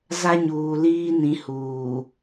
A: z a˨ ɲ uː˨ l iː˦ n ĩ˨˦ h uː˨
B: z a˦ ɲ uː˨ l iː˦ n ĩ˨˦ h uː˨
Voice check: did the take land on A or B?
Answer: B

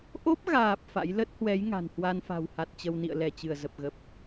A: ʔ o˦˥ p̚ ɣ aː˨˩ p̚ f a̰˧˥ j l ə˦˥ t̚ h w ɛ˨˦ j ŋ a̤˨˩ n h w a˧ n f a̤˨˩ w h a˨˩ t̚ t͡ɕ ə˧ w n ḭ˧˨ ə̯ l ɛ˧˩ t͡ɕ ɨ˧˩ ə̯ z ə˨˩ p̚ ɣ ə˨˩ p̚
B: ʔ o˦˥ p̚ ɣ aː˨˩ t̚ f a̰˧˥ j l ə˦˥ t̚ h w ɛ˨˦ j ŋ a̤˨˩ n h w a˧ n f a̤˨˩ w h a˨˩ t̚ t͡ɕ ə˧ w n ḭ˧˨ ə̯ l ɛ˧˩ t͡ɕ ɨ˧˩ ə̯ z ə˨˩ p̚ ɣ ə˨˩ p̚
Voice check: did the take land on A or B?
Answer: A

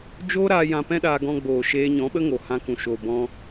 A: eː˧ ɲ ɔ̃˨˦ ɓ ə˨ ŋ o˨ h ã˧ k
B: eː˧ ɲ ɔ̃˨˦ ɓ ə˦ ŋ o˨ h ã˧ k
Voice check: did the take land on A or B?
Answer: B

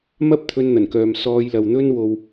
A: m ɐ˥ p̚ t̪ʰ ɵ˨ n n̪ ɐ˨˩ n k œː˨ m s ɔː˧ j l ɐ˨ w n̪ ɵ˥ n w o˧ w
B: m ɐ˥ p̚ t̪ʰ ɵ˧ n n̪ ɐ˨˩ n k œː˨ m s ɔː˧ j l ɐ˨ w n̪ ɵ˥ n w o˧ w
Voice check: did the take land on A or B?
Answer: B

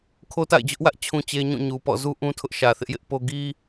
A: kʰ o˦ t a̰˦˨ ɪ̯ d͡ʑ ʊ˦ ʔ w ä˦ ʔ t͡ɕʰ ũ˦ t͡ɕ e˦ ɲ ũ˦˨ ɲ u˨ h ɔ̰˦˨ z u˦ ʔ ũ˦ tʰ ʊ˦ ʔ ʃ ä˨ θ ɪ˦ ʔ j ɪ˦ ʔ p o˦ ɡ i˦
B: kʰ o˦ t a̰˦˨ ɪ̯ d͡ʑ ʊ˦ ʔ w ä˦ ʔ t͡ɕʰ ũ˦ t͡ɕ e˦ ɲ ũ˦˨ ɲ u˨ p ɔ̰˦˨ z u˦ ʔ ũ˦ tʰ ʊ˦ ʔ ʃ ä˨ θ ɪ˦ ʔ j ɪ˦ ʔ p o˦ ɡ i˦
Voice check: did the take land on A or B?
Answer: B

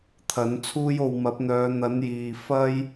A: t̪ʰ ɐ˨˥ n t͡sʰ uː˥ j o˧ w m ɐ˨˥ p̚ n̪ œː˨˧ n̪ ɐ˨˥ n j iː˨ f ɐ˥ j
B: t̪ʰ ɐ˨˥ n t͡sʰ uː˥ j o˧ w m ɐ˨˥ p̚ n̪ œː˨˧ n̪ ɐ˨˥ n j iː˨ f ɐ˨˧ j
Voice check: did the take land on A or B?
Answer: A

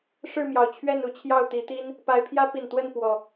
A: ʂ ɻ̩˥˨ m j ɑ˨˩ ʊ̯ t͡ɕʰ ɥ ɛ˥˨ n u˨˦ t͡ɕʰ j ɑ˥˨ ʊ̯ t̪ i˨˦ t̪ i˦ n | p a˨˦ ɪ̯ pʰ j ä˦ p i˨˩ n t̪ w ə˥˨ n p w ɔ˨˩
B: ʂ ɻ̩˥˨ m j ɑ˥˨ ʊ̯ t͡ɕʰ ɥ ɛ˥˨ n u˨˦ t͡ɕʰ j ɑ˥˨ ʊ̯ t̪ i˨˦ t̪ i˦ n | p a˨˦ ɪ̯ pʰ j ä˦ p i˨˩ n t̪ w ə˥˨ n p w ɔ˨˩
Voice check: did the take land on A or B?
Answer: A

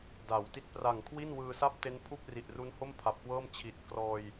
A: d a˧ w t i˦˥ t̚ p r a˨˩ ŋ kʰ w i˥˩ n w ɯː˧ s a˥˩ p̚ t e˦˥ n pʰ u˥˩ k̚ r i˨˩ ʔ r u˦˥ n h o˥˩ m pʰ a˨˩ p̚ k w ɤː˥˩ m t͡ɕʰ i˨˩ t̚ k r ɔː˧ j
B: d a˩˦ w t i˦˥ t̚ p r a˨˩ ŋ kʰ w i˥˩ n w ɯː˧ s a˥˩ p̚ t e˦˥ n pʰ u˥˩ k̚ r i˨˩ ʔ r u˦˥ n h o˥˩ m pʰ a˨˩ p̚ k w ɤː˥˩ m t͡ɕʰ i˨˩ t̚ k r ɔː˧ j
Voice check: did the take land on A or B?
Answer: B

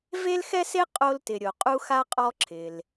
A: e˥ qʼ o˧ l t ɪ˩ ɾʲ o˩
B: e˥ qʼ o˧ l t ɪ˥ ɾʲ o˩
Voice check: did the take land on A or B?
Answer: A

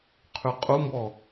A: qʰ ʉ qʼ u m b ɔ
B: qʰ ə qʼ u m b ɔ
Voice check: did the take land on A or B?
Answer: A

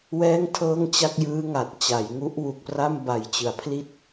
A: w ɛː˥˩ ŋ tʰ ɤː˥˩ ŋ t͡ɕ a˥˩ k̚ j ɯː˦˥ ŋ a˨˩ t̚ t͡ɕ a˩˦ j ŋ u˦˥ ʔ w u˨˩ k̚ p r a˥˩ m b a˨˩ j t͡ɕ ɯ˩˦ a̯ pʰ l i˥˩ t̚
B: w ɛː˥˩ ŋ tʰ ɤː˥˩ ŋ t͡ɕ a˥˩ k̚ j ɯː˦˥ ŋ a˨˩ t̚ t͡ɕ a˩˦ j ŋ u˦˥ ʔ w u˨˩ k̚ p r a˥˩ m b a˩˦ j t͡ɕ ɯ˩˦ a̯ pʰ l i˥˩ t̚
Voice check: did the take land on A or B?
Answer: A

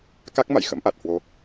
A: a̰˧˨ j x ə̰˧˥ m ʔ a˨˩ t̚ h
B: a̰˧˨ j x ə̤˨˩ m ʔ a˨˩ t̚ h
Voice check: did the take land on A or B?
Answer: A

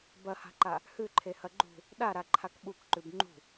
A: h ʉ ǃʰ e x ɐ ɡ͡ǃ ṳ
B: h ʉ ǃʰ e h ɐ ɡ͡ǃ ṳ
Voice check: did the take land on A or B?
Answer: B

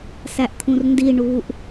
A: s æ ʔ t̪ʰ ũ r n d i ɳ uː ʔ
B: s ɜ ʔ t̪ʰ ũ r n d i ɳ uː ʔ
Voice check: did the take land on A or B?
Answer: A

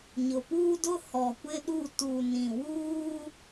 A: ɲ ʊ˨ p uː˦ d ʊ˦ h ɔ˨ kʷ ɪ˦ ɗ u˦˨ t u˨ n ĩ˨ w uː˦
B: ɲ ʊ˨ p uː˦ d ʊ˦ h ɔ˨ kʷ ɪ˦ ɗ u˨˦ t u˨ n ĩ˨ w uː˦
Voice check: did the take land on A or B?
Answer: A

